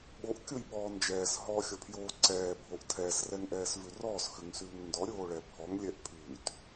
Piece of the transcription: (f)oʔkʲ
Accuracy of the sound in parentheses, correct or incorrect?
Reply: incorrect